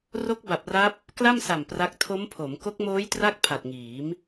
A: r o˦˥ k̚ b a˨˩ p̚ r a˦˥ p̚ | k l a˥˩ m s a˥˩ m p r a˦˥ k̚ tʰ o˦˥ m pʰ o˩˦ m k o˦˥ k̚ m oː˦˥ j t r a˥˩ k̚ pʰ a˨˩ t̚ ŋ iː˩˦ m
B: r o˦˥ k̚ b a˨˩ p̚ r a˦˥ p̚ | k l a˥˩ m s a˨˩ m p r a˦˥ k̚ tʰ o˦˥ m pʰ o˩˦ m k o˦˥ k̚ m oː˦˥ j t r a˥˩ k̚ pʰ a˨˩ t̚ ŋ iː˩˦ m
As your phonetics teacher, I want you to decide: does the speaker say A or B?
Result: B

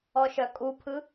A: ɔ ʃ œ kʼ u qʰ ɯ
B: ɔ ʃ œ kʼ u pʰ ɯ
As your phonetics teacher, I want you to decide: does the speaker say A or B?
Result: B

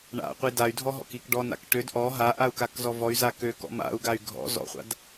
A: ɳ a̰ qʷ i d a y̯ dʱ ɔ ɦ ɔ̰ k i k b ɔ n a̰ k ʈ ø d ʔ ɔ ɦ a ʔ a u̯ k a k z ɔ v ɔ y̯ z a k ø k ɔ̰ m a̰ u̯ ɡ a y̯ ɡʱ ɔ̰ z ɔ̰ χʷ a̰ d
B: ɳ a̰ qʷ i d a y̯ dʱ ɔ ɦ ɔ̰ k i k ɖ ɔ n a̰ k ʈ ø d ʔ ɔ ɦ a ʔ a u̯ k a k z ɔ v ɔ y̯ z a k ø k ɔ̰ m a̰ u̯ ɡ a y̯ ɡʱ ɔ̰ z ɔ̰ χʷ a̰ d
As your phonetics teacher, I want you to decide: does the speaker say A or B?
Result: B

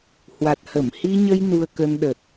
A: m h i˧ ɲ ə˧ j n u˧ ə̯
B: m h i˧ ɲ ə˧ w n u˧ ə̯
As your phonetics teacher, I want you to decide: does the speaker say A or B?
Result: A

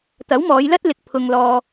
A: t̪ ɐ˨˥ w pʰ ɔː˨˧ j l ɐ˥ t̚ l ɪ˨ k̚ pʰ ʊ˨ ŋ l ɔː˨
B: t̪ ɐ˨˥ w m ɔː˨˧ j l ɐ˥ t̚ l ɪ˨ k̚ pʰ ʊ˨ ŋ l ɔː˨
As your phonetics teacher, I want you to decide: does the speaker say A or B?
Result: B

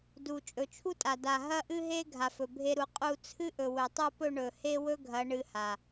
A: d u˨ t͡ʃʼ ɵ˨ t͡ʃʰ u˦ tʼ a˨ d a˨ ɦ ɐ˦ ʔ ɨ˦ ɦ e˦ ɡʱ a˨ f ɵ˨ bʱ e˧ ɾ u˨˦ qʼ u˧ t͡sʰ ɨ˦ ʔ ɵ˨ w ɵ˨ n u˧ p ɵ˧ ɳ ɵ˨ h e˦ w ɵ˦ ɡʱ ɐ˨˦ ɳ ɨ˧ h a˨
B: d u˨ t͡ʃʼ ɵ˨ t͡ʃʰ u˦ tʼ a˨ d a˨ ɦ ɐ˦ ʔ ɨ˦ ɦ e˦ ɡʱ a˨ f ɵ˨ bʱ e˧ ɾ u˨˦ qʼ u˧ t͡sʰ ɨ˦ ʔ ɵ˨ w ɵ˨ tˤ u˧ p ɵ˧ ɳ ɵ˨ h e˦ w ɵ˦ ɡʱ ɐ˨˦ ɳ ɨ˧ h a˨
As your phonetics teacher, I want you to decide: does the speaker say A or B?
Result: B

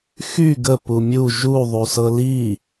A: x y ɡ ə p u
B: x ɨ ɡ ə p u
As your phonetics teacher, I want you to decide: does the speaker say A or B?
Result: A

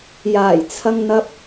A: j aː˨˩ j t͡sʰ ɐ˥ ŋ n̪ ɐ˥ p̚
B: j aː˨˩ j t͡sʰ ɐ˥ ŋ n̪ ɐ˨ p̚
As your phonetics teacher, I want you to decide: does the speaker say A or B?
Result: A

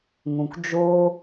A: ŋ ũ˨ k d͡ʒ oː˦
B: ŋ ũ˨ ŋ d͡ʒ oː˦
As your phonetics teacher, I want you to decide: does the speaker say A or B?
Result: A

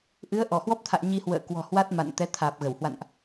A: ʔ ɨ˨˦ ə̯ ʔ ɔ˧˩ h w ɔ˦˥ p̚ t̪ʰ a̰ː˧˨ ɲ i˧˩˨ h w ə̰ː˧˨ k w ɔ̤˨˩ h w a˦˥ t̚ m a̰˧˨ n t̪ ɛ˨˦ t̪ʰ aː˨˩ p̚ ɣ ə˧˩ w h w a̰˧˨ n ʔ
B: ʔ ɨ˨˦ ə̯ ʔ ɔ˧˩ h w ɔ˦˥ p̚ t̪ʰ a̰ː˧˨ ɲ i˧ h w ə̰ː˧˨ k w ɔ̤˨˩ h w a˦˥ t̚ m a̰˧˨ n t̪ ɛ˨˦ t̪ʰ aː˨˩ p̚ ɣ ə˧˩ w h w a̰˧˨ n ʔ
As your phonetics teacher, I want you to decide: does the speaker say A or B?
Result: B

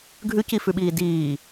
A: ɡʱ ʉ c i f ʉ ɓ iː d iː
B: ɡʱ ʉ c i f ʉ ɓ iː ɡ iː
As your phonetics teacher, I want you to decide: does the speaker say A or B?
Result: A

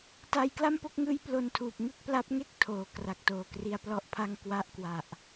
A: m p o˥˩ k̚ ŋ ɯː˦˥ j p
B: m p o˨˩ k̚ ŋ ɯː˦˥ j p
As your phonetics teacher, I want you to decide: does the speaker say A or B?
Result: A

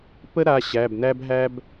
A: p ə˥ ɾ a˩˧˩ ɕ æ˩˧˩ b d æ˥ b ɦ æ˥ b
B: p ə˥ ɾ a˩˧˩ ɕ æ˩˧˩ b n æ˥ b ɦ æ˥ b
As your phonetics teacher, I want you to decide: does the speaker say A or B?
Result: B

